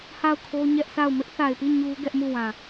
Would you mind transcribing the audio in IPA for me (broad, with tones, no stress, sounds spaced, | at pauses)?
h a˦˨ ʊ̯ kʰ o˦ ɲ ɛ˦ ʔ sʰ a˦˨ ʊ̯ m ɪ˦ ʔ θ a˨ ɪ̯ p i˦˨ ɲ u˦ ɡ ɛ˦ ʔ m u˦˨ w ã˨